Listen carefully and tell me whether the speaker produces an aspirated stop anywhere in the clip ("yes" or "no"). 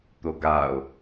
no